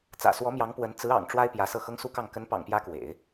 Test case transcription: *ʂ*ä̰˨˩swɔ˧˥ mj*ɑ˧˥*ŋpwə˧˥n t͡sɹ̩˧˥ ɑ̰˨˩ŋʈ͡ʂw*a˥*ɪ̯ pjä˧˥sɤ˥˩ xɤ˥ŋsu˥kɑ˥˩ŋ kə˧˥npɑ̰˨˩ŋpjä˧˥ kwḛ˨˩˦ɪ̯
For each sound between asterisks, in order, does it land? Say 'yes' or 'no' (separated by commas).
no, yes, yes